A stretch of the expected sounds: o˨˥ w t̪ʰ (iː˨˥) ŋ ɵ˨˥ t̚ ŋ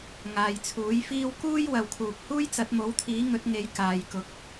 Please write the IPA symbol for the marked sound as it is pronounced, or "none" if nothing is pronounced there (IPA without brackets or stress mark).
iː˨˥